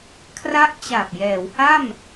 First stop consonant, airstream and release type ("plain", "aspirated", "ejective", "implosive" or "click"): aspirated